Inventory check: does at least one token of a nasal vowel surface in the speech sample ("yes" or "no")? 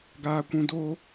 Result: yes